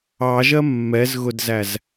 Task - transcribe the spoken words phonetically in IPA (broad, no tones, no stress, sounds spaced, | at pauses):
ɑ ʒ ɜ mː ɛ z ɣ ʊ d z æ z